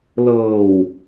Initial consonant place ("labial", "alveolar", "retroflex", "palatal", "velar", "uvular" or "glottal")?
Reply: alveolar